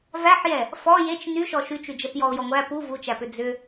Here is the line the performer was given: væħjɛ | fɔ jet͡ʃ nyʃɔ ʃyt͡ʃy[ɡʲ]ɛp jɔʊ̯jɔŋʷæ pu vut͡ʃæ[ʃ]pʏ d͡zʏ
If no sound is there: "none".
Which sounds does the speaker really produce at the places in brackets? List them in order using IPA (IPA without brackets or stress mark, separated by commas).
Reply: d͡ʒ, none